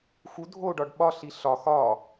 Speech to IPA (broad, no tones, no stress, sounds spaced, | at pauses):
x u dʱ o ɖ ɒ ɖ ɓ ɒ ɬ i ɬ ɒ x ɒ